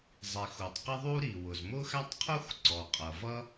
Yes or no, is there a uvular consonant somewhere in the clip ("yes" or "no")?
yes